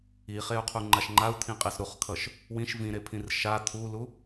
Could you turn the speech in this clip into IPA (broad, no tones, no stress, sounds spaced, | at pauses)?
i χ e u̯ qʰ u ŋ͡ǃ a ʃ ŋ͡ǃ a u̯ t̪ʰ ĩ qʼ e s ɾ u χ kʰ ʌ ʃ | w ĩ ʃ v ĩ ɾ e pʰ ĩ r ʃ a t̪ʰ u l u